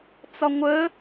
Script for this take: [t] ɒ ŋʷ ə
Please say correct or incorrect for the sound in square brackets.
incorrect